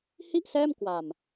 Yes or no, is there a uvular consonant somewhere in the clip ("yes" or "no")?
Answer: no